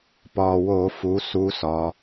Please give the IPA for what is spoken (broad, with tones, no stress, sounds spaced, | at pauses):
p ɒ˨˩ w o˧˩˧ f u˩˧ s u˧˥ s ɒ˩˧